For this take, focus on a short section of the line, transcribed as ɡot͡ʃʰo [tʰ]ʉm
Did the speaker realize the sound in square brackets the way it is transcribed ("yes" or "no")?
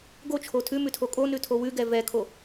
yes